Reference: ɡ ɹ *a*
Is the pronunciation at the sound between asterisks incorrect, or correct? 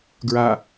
correct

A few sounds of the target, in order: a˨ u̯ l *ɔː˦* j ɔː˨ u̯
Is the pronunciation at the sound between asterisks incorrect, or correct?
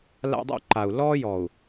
correct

